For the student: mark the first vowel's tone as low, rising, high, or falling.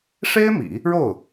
high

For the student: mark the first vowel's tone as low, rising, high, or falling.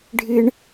high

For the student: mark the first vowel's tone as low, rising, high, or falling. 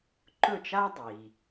falling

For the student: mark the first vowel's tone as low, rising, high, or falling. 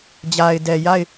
low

